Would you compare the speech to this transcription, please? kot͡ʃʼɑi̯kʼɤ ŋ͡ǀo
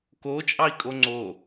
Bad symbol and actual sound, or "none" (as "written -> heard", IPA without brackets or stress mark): ɤ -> o